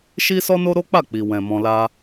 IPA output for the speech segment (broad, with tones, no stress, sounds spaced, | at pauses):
ʃ i˦ s ɔ˦ n o˦ ɾ o˦ k͡p a˦˨ k͡p i˨ w ɛ̃˨ m ɔ̃˧ l a˦